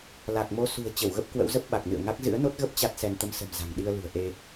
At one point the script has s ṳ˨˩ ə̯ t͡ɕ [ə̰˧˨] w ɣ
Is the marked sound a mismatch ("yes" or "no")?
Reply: yes